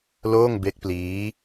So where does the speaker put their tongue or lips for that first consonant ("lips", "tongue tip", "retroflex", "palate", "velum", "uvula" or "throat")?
tongue tip